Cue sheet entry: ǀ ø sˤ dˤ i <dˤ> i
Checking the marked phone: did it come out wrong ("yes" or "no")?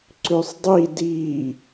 yes